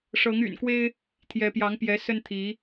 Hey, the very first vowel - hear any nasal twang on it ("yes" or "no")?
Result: no